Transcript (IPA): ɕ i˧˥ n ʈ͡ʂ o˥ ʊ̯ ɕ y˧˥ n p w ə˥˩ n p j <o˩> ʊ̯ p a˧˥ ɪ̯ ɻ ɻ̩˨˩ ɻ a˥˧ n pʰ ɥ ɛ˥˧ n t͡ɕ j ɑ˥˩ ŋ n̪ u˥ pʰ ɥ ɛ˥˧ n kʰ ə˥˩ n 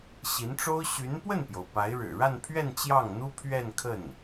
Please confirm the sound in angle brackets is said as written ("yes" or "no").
yes